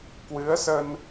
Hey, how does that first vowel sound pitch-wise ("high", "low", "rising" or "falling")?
rising